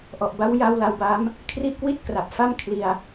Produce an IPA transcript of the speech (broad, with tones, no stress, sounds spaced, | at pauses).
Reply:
ʔ ɔ˨˩ ʔ b a˦˥ w j a˧ w l a˧ w b a˦˥ m | kʰ r i˥˩ ʔ k w i˥˩ t̚ k r a˨˩ p̚ f a˥˩ m kʰ l i˧ a̯